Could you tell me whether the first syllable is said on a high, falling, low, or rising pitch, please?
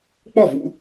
falling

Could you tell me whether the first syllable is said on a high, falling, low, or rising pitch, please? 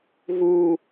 high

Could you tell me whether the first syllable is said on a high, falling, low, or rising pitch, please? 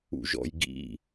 low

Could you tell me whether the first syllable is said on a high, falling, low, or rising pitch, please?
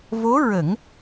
rising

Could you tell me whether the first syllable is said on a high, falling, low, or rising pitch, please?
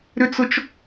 high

